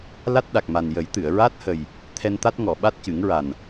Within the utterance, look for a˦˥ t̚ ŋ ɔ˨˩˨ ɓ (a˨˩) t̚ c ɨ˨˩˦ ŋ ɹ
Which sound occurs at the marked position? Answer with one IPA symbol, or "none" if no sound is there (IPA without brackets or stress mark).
a˦˥